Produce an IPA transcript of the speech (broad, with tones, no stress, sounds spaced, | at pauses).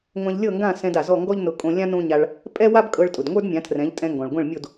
ŋʷ ã˧ ʎ lʲ ɤ˥˩ ŋ ɡ ã˥˩ s ɛ̃˧ d a˩ z ɔ˥˩ ŋ ɡ ɔ˥ ʎ n ʊ˧ kʼ õ˧ lʲ ã˥ n õ˥ ɲ a˧ ɭ | pʼ ɛ˥ w a˥ b kʼ ɤ˧ ɭ tʼ ʊ˩ d ŋʷ ə˞˥ d mʲ ã˩˥ tʰ r ɛ̃˩˥ ʎ tʼ ɛ̃˧ ŋ ɡ ɔ̃˩ ɭ ɡʷ ɛ̃˥˩ ɭ mʲ o˥˩ d